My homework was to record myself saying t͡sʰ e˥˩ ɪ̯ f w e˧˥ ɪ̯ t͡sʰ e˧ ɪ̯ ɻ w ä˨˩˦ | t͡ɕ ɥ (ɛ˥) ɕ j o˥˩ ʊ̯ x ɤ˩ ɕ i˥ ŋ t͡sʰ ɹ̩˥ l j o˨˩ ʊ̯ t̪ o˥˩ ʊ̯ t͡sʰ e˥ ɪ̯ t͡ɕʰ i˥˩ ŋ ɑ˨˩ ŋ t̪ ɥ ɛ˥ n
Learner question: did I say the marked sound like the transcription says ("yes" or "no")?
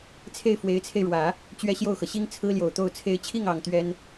yes